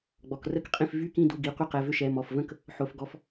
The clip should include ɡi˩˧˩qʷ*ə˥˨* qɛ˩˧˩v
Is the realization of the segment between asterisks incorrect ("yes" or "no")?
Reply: yes